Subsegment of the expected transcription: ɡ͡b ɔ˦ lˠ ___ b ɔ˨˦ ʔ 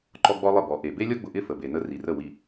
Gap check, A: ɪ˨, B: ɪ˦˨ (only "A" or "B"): B